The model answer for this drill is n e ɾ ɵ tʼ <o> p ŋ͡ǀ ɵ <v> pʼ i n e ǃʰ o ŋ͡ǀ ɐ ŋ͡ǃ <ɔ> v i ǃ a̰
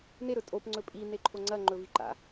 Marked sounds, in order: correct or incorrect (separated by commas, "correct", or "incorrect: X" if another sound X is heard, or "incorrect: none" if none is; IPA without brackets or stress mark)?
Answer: correct, incorrect: none, incorrect: ɵ